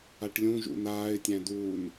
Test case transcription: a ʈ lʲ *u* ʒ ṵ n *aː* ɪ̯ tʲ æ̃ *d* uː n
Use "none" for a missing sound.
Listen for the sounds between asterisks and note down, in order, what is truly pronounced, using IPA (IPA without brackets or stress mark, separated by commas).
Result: ũ, aː, d